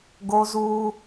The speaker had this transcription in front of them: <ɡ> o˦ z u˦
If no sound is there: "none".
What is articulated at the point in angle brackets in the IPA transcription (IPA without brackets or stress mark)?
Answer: ɡ